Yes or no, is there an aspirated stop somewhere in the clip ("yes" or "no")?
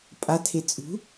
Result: yes